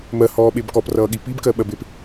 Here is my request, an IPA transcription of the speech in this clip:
mɜhɔːɓeb kɔprʌːɠi pibkɜɓɜbep

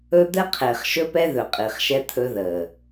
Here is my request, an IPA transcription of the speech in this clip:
ɵ˦ d̪ɛ˦qʰeː˨χʃɵ˦pɛ˦ ðɵ˨qʼi˨χʃɛ˦ t̪ʰɵ˦ ðəː˨

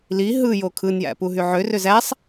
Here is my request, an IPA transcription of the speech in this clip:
li ɦɯjo kʰɯnjæ̰puɦy ʕørøz æsˤ

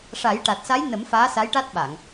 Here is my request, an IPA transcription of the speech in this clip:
ʂa˨˩˦jʈa˨˩t̚sa˧˥jnə˨˩˦m faː˧˥sa˧˥jʈa˦˥t̚ɓa˨˩˨ŋ

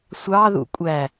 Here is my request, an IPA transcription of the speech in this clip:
sʷɑ ðṵkʷʼæ

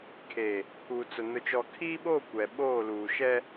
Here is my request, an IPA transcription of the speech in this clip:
kʰeː˨ | pʰuː˨t͡sʊ˨ nʊ˨t͡ʃɔ˨kʰiː˦ɓoː˦˨ kʷɛ˨ɓoː˦˨ luː˨ʃɛ˦

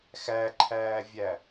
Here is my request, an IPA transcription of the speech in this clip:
xæǃʰæːvʲæ

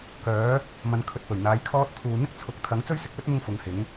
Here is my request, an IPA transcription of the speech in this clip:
kœː˨˥ | mɐ˧nkʰɵ˧t̚pɵ˨˩ɥn̪aː˨˥j kʰɔː˥t̚t̪ʰuː˨˧ n̪ɪ˥k̚t͡sʰʊ˨˥k̚ t̪ʰɐ˨˥ŋt͡sɵ˥ɥsɪ˧k̚lɵ˥t̚ mʊ˥ŋfʊ˨˥ŋhɪ˨˥ŋ

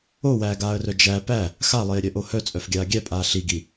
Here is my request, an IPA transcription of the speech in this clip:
owæːɡaːə̯rœ d͡ʒæ pæ | xalˠeːɾʲœʔo hœt͡sʼœfɡʲaː ɡʲæpʼaː ɬiɡi

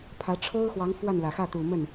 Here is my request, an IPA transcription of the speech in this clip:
pʰä˧˥ʈ͡ʂʰo˥ʊ̯xwɑ˧˥ŋ fwa˥˩nlä˨˩ xä˥˩t̪u˨˩mə˥˩n

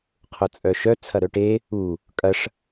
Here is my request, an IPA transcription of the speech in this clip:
qʰʊt͡sʼœʃœ t͡sʰɐɾœʈe | u | kʼɐʂ

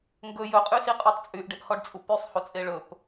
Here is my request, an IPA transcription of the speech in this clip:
ŋɡɵ jɵqʼysiqʼytˤ t͡sʼyʔɖeʔhɔɖt͡sʼu pysˤhut͡sʼe ɭɵp

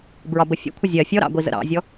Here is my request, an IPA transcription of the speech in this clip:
bɹɒbəfʲə̰kʷʰɪ zʲɜ fʲɔɾɑ̰ɡʷizə̰ ɾɑ̰zʲɔ

